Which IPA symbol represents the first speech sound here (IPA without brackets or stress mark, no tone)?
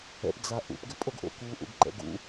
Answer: ɛ̰